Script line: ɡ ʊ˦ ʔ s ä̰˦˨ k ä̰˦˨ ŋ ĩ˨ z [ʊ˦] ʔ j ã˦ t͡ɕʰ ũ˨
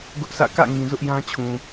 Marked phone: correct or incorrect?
correct